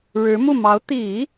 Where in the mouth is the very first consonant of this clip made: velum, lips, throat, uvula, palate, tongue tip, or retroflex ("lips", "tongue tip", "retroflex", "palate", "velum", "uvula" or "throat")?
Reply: retroflex